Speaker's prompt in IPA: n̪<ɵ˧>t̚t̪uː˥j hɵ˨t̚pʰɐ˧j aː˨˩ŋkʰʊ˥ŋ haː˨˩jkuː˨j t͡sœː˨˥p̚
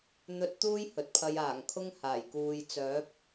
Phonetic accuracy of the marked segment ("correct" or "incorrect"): correct